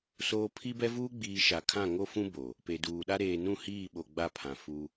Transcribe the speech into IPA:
s oː˦ pʰ i˦ b ɛ˦ v uː˦ ɡ͡b iː˨ ʃ a˨ kʰ ã˦˨ ŋ o˦ f ũ˦ b o˨ | p e˨ d uː˨ ɗ a˦ ɾ eː˨ n ũ˦˨ h iː˦˨ ɓ o˨ ɡ͡b a˦˨ pʰ ã˨ f u˦

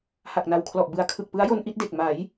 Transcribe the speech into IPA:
h a˨˩ k̚ n a˨˩ w kʰ l ɔ˨˩ ʔ b ɯ˨˩ a̯ kʰ ɯ˨˩ k̚ p ɯ˦˥ a̯ j o˧ n ʔ i˦˥ t̚ d e˨˩ k̚ m a˩˦ j

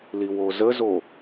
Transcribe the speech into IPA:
l i w o z ə z o

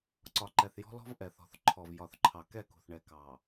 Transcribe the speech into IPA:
ǀ ɒ˨ ǃ ɛ˨ θ j ɔ̤˦ l ɔ̤˦ v ʔ ɛ˨ θ ɔ̤˨ θ ǃʰ ɔ˨ v j ɒ˨ θ ǃʰ ɑ˨ k ɛ˦˨ k ṳ˨ θ ɳ ɛ˨ k ɑ˨

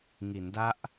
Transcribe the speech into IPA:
ŋ i˩˦ n d a˦˥ ʔ

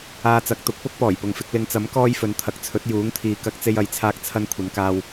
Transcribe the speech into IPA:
aː˧ t͡s ɐ˨˥ k̚ t̪ ʊ˨˥ k̚ p ʊ˥ k̚ p ɔː˨˩ j p ʊ˨ ŋ f ɪ˧ k̚ l ɪ˨˧ ŋ t͡s ɐ˨˥ m k ɔː˧ j f ɵ˨˧ n t̪ʰ ɐ˨ k̚ t͡sʰ ɵ˨˥ t̚ j uː˨˥ ŋ t̪ʰ iː˨ k ɐ˧ k̚ t͡s e˧ j ɐ˨ j t͡sʰ aː˧ k̚ t͡sʰ ɐ˧ n kʷʰ ɐ˨˧ n k aː˧ w

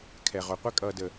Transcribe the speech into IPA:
kʰ ɛ˨ ʁ o˨ qʷ ɛ˦ kʼ ʌː˨ d ə˨

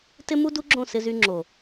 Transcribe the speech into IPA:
t ɪ˦ m u˦ d u˦ ɡ͡ǁ õ˦˨ s ɪ˦ z y˦ ŋ͡ǁ o˨

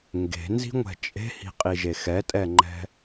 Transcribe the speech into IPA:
ŋ ɡ e̤ n z i̤ ŋʷ ɛ̤ t͡ʃʼ e̤ h i̤ qʼ i ʒ e x ɛ tʼ ɛ ŋ͡ǃ ɛ̤

